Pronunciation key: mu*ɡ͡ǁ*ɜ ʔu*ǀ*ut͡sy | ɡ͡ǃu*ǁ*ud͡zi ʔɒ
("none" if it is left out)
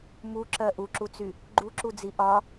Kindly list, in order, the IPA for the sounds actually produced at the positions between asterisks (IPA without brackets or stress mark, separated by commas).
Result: ǁ, ǁ, ǁ